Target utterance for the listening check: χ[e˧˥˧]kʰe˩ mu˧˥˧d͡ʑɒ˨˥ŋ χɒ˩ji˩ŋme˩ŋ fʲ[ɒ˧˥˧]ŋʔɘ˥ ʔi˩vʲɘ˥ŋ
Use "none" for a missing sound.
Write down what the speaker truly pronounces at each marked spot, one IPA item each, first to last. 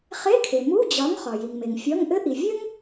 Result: e˧˥˧, ɒ˧˥˧

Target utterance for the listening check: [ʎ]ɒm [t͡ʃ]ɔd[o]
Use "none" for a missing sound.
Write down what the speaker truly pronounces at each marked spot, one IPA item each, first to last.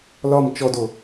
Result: l, t͡ʃ, o

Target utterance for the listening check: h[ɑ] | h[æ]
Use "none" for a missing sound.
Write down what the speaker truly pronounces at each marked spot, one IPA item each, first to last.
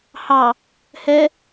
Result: ɑ, ɛ

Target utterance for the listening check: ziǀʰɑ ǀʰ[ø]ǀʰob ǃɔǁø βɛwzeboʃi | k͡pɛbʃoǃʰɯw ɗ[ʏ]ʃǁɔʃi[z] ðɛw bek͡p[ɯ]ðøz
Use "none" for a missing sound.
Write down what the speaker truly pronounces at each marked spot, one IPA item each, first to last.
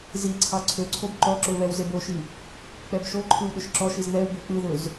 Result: ø, ʏ, z, ɯ

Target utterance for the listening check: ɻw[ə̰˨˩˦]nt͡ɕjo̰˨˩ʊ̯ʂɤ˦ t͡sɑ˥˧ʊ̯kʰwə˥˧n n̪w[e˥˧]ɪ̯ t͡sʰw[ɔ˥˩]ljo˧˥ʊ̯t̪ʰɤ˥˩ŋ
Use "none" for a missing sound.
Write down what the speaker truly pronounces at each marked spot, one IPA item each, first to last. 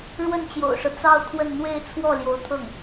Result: ə˥˩, e˥˧, ɔ˥˩

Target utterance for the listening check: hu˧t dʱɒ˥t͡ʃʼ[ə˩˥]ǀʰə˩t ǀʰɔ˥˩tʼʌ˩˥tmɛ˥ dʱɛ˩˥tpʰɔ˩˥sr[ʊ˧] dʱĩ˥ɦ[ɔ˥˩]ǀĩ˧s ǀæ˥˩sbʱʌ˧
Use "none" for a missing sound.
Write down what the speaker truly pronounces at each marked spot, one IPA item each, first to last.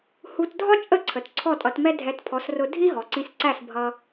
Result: ə˥˩, ʊ˧, ɔ˩

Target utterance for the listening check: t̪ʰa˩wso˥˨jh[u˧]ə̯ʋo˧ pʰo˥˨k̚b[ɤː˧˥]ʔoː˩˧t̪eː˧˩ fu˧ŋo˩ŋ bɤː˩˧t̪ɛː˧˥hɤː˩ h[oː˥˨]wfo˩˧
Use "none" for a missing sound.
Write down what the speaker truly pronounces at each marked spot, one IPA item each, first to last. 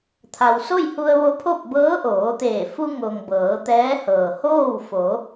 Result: u˧, ɤː˧˥, oː˥˨

